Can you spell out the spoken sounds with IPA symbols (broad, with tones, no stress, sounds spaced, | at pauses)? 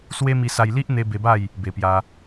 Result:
s w e˦ m i˧ s a˧ j l i˦ ʔ n̪ e˧ b e˧ b a˥˧ j | b e˨˩ p j a˧